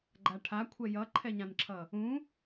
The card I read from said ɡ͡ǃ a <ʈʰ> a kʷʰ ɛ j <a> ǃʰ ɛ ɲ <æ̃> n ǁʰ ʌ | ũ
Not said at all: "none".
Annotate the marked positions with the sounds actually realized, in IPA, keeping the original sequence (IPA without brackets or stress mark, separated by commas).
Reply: ʈʰ, ʌ, ã